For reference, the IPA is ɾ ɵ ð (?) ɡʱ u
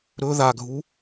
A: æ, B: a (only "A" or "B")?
B